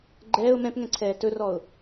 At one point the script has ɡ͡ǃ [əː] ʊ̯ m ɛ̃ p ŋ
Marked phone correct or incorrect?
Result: incorrect: ɛː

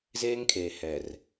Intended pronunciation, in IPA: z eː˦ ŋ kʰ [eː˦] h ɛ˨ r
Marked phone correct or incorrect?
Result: incorrect: eː˨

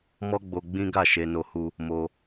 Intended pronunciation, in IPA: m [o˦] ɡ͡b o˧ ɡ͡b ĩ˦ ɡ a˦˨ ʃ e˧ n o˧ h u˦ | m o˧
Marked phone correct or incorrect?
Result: incorrect: ɔ˦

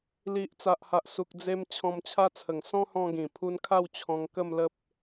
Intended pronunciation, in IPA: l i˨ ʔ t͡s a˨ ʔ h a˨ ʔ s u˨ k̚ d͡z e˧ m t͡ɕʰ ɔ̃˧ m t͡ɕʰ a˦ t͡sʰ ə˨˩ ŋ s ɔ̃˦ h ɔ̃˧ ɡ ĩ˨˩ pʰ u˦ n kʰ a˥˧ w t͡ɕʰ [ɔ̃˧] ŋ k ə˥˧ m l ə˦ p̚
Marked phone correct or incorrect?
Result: correct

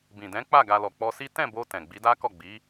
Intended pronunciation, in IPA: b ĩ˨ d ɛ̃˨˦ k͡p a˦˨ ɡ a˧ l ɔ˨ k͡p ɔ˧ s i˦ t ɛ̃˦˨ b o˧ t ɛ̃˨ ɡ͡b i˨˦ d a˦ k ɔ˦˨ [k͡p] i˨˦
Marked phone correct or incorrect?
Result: incorrect: ɡ͡b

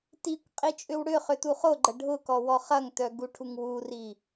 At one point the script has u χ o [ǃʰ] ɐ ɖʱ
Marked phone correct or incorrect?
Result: incorrect: ɡ͡ǃ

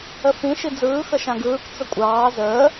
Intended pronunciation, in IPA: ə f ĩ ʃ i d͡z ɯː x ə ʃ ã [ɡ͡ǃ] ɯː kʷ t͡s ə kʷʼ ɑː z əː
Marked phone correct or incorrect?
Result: incorrect: ɡ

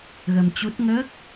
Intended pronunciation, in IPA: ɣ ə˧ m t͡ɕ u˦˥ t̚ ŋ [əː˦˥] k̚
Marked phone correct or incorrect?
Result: correct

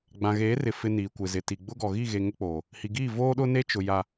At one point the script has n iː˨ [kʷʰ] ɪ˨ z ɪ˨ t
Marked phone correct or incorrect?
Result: incorrect: kʷ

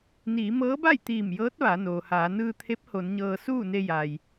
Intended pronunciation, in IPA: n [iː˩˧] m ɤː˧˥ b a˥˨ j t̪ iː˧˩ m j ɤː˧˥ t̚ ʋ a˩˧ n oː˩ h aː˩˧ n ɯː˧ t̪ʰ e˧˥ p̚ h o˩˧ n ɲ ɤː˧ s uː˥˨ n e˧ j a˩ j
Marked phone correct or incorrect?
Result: correct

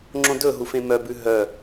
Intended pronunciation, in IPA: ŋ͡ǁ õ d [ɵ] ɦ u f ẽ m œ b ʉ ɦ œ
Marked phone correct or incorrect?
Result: correct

